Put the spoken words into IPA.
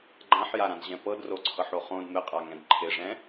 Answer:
ɡ͡ǃ ã ħ j a ɾ ã d ʑ ɛ̃ p ɤ d r o ǀʰ ɤ ħ o χ õ d m ɪ qʼ a ŋ ɛ̃ d ǃʰ ɪ ʐ ɛ̃

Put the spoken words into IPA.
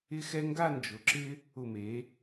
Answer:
ɪ˥ x ɛ˥ ŋ ɡ a˥˧ n d͡ʒ ʊ˩˧ ǁ ɪ˥ | ʊ˧˩ m e˩˧

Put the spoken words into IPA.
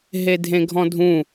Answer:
ɦ e dʱ ẽ ɡʱ ɔ̃ dʱ ũ

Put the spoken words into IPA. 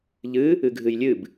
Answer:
ʎ ɨ | ɨ ɡʱ ɨ j lʲ ɨ b

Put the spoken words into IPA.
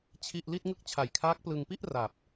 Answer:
t͡ɕʰ i˥˩ ʔ l i˥˩ t̚ ŋ ɯ˥˩ k̚ t͡ɕʰ a˨˩ j kʰ aː˦˥ k̚ p l ɯ˧ ŋ p i˥˩ ʔ r a˨˩ p̚

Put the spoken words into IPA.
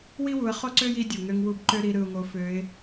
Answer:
w i˥ w u˩˧ ə̯ χ o˥ ǀ ø˥ j i˧˥ dʲ u˩ ŋ ø˧ ŋ w u˧ b ǃ ø˥ ɾ i˧˥ ɾ ɯ˧ ʊ̯ ŋ o˧˥ f ø˧˥ ɪ̯

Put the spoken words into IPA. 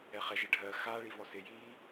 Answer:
ɛ χ ɛ ʒ ɪ ɖʱ ɜ x a ɭ i v ɔ s ɪ j iː

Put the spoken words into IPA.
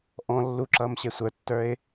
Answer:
ʔ ɔ̃ lː u ǁ ʌː m ɕ e sʷ ə˞ tː ə˞ ɪ̯

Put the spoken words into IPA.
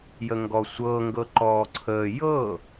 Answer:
j ə ŋ ɡ ɔ sʷ ɤ ŋ ɡ ɤ ǃ ɔː ǀʰ əː j ɤ

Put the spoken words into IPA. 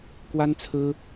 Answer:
k w a˥ n t͡sʰ ɹ̩˥

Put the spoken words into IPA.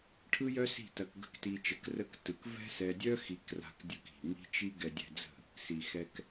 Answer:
ʈʰ ɯ˦ j œ˦ s i̤˦˨ t ɐ˧ k ɡ ə̤˦ k t i˧ t͡ʃ ə˨˦ k r ə˦˨ k t ɯ˨ k v ɛ̤˦ s ɛ˧ dʲ œ˦ x i˧ k r a̤˧ k dʲ ɯ˧ k i̤˨ m i̤˧ t͡ʃ i˧ ɡ ɛ˧ dʲ ɛ̤˧ d͡z ə̤˦˨ | s i˨ x ɛ˧ k

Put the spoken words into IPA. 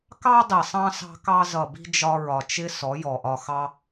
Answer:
k ɑ˦ dˤ i˨ sˤ ɑ̃˧ s ɑ̤˧ k ɑ˧ z ʌ˨ b i̤˧ d͡ʒ ɒ˧ ɹ ɒ˨ t͡ʃ ɪ˦ s ɔ˨˦ j ɔ˨ ʔ ɒ˧ x ɑ˦

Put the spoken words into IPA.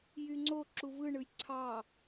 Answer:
j y ŋ͡ǀ o ǁ u v ɯ ɳ ɯ j ǀʰ ɑ

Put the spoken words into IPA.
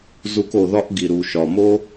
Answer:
z u˧ k o˩ ð ɒ˥ ʔ ɡ i˩ ɾ u˩ ʃ ɒ˩ m o˥

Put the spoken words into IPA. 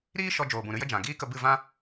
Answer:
ɾ iː˦ ʃ ɔ˧ d͡ʒ oː˨ b ũ˨ ɾ ɨ˧ j ə˧ d͡ʒ ã˨ ɡ iː˦ k ə˧ b ɨ˦˨ v ã˦

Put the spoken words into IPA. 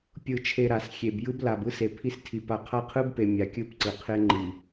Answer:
pʲ ɯ˨ t͡ʃʰ e˨ ɾ a˨ s xʲ e˨ b j ɯ˦ b l a˨ b ɯ˦ s e˨ pʰ i˦ s tʰ i˨ p a˨ qʰ a˦ qʰ ɯ˦ b p e˨ mʲ a˨ kʲ ɯ˦˨ p ǀ ɯ˨ qʰ e˦ ŋ͡ǃ i˨

